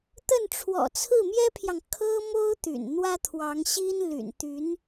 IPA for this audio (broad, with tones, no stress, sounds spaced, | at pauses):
t̪ ə˥˩ n ʈ͡ʂʰ w ɔ̰˨˩ t͡sʰ ɹ̩˥˩ m j ɛ˥ pʰ j ɑ˨ ŋ kʰ ɤ˥ m o˥ ʊ̯ t̪ y̰˨˩ n n̪ w ä˥ t̪ʰ w ɑ˧˥ ŋ ɕ i˥ n l y̰˨˩ n t̪ y˧˥ n